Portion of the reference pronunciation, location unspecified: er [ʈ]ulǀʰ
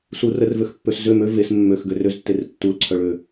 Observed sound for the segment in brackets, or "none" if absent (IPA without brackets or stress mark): tː